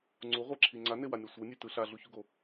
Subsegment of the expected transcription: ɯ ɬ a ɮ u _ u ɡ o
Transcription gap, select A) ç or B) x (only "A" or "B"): A